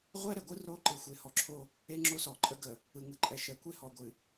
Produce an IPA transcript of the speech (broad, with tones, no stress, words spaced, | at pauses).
ʁʷɛ˦ɾɛ˨ɡʷɯ˦ ro˦ ǃɨ˨xʷe˨hɔ˨ǁʰo˦ | e˦ŋ͡ǁo˦sɔ˨ǃʼə˦ ɡə˨ | ɯ˨ŋɯ˨ǃʼɛ˨ ʃɛ˨kʷe˦ hɔ˨ ɡʷɨ˨